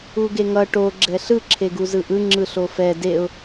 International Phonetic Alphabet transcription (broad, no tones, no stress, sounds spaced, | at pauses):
u ɡ e ŋ ʌ ʈ o ɡ͡ǁ ɛ ɬ ɯ ǁʰ e ɡ u z ɯ ʔ ɯ ŋ͡ǁ ɯ ɬ o f ɛ d e ʊ̯